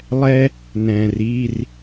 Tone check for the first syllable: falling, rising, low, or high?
high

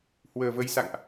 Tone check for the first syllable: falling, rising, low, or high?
low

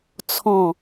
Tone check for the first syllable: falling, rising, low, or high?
falling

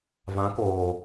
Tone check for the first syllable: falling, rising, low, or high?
rising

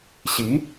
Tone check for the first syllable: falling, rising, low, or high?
rising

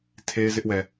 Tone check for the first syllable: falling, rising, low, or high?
high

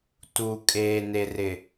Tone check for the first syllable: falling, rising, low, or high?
low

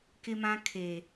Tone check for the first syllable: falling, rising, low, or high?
high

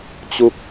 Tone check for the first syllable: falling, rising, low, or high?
low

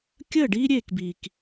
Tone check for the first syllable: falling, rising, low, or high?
falling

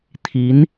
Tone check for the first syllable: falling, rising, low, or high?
rising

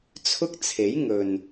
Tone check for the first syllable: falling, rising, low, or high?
high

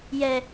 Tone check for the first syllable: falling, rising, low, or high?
high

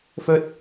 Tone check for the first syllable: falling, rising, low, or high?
high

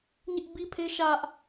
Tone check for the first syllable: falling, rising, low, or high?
high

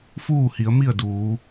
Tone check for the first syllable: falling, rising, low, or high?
falling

